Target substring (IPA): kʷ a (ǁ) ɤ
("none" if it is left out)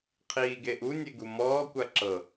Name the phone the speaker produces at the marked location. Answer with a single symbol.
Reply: ǁ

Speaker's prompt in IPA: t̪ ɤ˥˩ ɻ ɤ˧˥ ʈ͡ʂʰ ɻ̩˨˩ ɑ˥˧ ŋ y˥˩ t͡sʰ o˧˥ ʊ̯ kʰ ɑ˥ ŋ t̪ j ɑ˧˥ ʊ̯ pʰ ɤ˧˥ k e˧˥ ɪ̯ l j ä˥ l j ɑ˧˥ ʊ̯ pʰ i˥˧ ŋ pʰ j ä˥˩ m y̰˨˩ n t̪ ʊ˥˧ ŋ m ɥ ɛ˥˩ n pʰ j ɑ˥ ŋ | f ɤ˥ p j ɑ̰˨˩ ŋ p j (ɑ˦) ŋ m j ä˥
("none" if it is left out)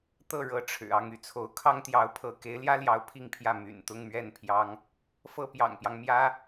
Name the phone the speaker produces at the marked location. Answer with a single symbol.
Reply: ɑ˦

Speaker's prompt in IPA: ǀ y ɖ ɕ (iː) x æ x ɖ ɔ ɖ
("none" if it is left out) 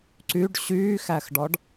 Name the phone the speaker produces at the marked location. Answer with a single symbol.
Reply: yː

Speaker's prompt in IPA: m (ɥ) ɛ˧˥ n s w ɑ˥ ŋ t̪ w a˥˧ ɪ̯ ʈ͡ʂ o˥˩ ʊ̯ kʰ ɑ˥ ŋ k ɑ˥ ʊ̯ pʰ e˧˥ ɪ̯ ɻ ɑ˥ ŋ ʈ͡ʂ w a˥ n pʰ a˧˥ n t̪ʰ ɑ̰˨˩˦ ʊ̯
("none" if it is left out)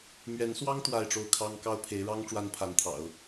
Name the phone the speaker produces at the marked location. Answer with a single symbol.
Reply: ɥ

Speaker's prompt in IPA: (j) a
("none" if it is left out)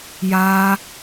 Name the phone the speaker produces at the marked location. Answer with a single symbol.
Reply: j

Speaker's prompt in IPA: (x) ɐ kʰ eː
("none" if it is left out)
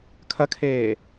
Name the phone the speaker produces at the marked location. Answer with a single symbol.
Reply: kʰ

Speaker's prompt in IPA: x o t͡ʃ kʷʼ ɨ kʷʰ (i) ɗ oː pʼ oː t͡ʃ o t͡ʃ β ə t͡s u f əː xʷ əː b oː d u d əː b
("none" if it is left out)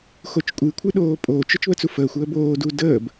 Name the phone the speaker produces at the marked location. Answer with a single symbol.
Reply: ɨ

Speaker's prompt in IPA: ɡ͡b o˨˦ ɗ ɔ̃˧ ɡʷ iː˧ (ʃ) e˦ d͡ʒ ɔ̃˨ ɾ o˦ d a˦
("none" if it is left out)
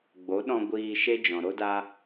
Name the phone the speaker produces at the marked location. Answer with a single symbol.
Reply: ʃ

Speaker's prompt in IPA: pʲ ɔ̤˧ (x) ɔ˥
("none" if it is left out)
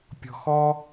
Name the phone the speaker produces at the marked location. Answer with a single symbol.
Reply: x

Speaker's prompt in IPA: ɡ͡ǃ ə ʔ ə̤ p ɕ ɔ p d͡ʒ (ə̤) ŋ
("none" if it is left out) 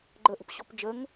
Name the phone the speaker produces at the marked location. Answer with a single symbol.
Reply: ə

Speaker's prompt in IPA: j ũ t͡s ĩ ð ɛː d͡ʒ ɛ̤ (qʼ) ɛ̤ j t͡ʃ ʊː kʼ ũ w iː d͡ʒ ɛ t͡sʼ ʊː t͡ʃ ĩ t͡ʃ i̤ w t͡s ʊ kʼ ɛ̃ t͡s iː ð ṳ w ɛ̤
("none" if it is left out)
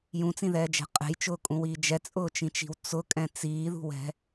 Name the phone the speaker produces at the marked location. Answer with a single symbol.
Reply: qʼ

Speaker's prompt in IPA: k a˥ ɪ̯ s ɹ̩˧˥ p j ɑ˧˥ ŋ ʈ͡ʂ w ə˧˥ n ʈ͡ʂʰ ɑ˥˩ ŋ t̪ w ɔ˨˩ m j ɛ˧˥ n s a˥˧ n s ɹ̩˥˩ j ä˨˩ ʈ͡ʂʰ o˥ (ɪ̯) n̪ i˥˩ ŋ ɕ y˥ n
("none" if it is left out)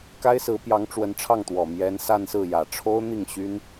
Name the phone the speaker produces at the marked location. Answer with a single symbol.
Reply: ʊ̯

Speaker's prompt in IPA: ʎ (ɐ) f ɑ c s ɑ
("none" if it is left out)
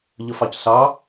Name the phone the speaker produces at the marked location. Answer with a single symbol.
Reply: ə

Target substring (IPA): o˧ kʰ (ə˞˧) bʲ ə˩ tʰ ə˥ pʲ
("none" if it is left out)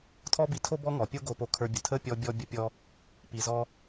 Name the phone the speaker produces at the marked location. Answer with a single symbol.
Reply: ə˞˧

